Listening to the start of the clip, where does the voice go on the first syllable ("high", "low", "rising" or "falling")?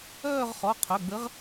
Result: falling